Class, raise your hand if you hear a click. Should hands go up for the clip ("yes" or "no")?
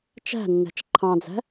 yes